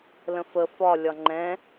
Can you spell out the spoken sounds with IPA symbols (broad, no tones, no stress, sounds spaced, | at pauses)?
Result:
l ə̃ f ə f ɒ lʲ ɒ ŋ͡ǃ ɛ̃